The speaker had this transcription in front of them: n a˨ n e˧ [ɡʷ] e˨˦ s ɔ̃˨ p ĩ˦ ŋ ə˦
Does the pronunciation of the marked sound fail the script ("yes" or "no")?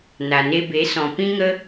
yes